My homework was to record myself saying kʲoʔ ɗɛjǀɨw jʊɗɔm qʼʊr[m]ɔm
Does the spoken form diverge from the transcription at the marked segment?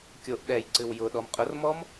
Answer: no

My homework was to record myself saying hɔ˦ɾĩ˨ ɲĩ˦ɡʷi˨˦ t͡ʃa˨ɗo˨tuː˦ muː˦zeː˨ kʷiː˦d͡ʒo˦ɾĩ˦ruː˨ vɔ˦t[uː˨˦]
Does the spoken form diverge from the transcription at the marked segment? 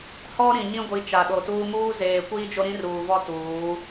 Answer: no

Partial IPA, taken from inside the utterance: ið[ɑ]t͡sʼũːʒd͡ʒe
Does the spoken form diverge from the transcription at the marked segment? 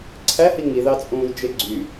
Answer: no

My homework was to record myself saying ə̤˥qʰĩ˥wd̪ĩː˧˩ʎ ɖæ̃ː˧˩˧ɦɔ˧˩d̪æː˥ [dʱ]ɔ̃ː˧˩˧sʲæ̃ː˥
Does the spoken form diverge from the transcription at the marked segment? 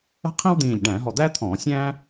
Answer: yes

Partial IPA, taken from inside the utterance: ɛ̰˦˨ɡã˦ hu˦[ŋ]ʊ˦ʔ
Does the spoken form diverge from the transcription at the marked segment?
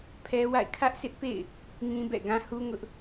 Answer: no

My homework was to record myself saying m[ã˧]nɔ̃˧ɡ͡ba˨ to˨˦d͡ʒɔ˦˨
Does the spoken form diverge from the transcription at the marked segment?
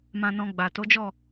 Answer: no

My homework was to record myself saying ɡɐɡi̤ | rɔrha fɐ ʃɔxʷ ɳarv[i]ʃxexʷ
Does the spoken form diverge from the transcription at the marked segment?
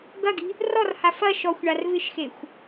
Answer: yes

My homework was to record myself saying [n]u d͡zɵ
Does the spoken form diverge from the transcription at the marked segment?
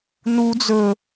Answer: no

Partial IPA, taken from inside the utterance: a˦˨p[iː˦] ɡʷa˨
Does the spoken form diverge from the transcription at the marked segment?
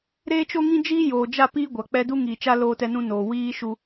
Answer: no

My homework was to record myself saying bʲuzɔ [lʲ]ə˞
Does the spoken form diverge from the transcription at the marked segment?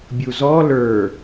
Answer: yes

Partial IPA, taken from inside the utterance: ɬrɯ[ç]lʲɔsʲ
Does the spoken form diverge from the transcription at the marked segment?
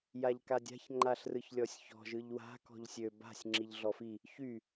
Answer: no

